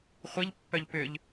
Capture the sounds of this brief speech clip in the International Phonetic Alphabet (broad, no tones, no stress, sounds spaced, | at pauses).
χʷ i ʎ pː œ ʎ p ʏ ʎ